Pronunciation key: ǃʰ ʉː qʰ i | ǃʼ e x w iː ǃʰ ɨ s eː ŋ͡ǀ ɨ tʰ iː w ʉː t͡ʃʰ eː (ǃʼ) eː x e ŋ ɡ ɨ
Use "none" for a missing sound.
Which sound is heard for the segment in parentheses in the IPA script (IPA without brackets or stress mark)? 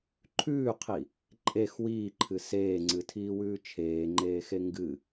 ŋ͡ǃ